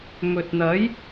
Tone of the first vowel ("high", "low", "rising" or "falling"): low